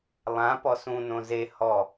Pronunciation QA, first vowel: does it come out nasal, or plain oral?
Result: nasal